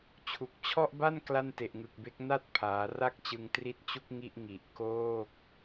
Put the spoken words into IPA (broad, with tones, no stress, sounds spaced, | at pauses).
t͡ɕʰ u˨˩ k̚ t͡ɕʰ ɔ˥˩ ʔ b a˥˩ n k l a˥˩ n t e˨˩ ʔ ŋ ɯ˨˩ k̚ b e˦˥ k̚ n a˥˩ t̚ pʰ aː˩˦ r a˥˩ k̚ t͡ɕ ɯ˧ ŋ t r i˦˥ t̚ t͡ɕ u˥˩ k̚ ŋ i˥˩ ʔ ŋ i˨˩ ʔ k oː˥˩ k̚